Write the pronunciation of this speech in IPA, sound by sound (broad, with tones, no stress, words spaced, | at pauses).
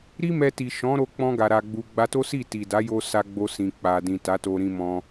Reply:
ɾi˦mɛ˧ti˨ ʃɔ̃˨˦ɾo˧ k͡pɔ̃˧ɡa˨ ɾa˨ɡ͡bu˨ ɡ͡ba˧to˦ si˦˨ti˨da˨˦jo˧ sa˧ɡ͡bo˧sĩ˨ k͡pa˨dĩ˨ ta˨˦to˧ɾĩ˧mɔ̃˧